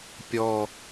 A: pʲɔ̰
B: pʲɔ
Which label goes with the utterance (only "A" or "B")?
B